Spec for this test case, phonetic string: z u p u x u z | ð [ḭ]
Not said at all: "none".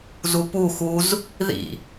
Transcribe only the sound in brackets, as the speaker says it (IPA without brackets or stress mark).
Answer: ḭ